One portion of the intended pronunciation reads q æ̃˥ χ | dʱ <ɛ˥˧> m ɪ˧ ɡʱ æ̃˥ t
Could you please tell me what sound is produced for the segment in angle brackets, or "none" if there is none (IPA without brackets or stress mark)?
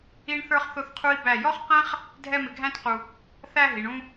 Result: ɛ˥˧